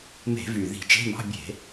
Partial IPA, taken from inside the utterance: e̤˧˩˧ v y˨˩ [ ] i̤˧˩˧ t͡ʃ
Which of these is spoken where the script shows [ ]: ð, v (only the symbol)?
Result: ð